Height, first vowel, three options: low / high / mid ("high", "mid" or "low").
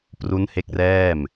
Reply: high